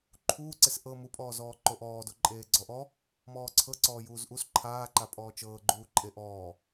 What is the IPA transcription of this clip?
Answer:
ǃʰ uː ǀ e s ʔ ɤ m u pʼ ɔː z ɔː ǃ o ʔ ɔː d o ǃʼ eː ɡ͡ǀ ɔ ʔ ɔ | m ɔː ǀʰ ɤ ǀ ɔː j uː z ʔ u s ǃʰ aː ǃ a pʼ ɔː t͡ʃ ɤː ɡ͡ǃ uː ǃʼ e ʔ ɔː

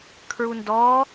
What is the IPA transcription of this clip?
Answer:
kʰ ɹ u n d ɔ

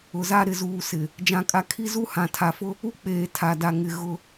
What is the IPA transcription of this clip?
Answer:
ʊ˨ z a˦ ɾ ɪ˨ z uː˨ s ɪ˨ | d͡ʒ ã˦ kʼ a˦ kʰ i˦ z u˦ h ã˨ tʰ a˨ f ʊ˦ | u˦ k͡p eː˨ tʰ a˨ d a˨ ŋ ɪ˨ ɣ ʊ˦

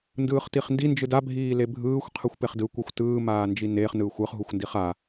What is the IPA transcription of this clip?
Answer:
n d ɯː χ t i χ n d i n d͡ʒ ɯ d a bʱ iː l e bʱ ɯː xʷ qʰ ɯ xʷ p e χ d ɯ kʷ a xʷ t ɯː m aː n d͡ʒ i n e χ n ɯː xʷ ɯ χ ɦ u xʷ n d i χ a

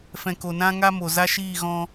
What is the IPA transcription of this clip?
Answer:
f ɛ̃˨ k o˨ n ã˦ ŋ a˦ m o˨ z a˦ ʃ iː˦˨ ɣ ɔ̃˦

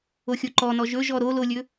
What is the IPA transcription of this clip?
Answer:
o xʲ o ǃ ɔ n ɔ ʒ ɵ ʒ ɔ ɾ o l o lʲ ɵ

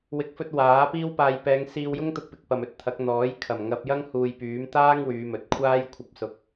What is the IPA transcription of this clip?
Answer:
w ɪ˨ k̚ f ɵ˧ t̚ w aː˨˥ p iː˥ w p aː˧ j p ɛː˨˧ ŋ s iː˧ w j ʊ˥ ŋ t̪ ʊ˧ k̚ p ɪ˨ k̚ p ɐ˨ m ɵ˨ t̚ t̪ʰ ɐ˨˥ k̚ n̪ ɔː˨˥ j kʰ ɐ˨˩ m ŋ ɐ˧ p̚ j ɐ˥ ŋ h uː˨ j p yː˨˥ m t̪ aː˥ ŋ w yː˨˧ m ɵ˨˥ t̚ kʷʰ aː˥ j kʷʰ ɐ˧ p̚ s ʊ˧ k̚

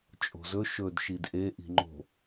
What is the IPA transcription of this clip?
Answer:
t͡ʃʼ o̤ z ɵ ʃ ɵ d ʃ i d ʔ e ʔ i̤ ŋ͡ǃ o̤

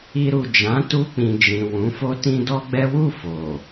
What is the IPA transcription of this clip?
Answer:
i˧ ɾ u˨ d͡ʒ ã˨˦ t u˧ k͡p ĩ˨ d͡ʒ ĩ˨ w ũ˨˦ f o˦ t ĩ˦ d ɔ˦ ɡ͡b ɛ˦ w u˦˨ f o˨

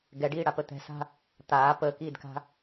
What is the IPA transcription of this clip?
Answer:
ɡ ɛ ɖ iː ɽ a p ə t̪ ɛ̤ s a̤ | t̪ aː p əː k iː d k a̤

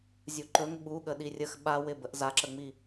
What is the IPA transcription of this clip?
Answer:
zʲ u ǃ ɵ ŋ ɓ u ɠ ə ɗ i rʲ ə x ɓ a w ɪ b ə ʔ z a ǁ ə ŋ͡m i

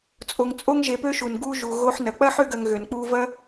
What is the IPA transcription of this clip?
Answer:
t͡sʼ o˨ ŋ t͡sʼ o˦ ŋ ʒ e˨ p ø˦ ʃ u˩ n ɡ u˦ ʒ u˨ ɣ o˦ ħ n ɐ˨ k͡p ɐ˥ ħ ø˦ ɡ ɐ˨ ŋ ɣ ø˩ n k͡p u˦ v ɐ˥

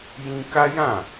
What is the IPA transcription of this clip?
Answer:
j ĩ˦ k a˦ j ã˦˨

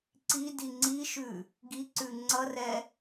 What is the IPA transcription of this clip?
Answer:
ǀ i d i ŋ͡ǀ i ʃ ʉ | ɡ i ǀ ʉ ŋ͡ǀ ʌ r ɛ

